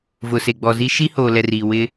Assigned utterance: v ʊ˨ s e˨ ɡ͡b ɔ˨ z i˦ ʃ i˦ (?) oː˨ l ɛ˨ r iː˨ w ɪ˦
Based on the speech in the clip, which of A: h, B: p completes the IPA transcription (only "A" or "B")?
A